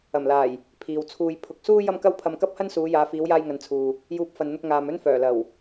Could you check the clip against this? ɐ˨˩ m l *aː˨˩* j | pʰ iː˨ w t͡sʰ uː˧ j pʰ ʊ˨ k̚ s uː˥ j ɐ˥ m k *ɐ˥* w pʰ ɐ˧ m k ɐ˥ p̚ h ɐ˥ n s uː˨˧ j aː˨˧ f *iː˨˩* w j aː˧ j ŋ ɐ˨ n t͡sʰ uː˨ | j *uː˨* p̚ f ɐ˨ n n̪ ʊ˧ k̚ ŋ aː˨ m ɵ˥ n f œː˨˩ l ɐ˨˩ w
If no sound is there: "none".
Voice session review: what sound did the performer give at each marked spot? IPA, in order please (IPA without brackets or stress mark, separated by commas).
aː˨˩, ɐ˥, iː˨˧, uː˨